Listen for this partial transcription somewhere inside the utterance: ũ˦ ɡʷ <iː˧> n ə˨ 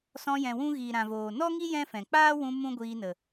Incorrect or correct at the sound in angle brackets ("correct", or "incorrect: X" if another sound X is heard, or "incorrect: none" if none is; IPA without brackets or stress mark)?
correct